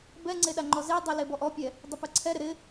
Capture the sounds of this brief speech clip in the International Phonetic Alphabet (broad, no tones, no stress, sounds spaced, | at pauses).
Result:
b ɛ ŋ͡ǀ e ɗ a ŋ͡ǃ ɔ z e dˤ ɛ l e b ɔ ʔ ɔ pʲ ɛ | dˤ ɪ p ɛ ǀʰ ɛ ɾ ɪ ɾ ɪ